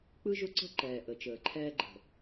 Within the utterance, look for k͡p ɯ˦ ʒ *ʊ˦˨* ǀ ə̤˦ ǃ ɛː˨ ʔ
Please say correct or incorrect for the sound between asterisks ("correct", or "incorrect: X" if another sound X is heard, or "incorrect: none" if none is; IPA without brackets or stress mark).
incorrect: ʊ˦